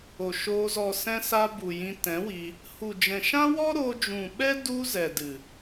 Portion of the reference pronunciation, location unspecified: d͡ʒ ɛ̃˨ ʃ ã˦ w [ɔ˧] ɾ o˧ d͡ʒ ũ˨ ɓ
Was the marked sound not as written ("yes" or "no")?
yes